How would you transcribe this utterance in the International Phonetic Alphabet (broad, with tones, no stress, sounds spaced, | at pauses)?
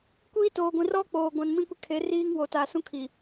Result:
kʷ iː˦ t oː˨ ɡʷ ĩ˨ r ɔ˦ k͡p oː˨ ɡʷ ã˨ n m ĩ˦ kʷ ɪ˦ kʰ e˨˦ r iː˦ ŋ w o˨ t a˨ s ũ˦ kʰ i˨